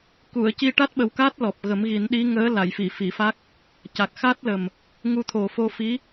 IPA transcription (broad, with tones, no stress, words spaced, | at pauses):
ku˨˩˨ə̯ci˧ ʈa˦˥t̚ɓə˨˩wka˦˥t̚ lɔ˨˩p̚ɣə˨˩˦mɣi˨˩˦n ɗi˧˥ŋəː˧˥ la˨˩˨jfi˨˩˨ fi˨˩˨fa˦˥k̚ | ca˨˩k̚xa˦˥t̚lə˨˩m | ŋu˧t̪ʰo˨˩fo˧ fi˧˥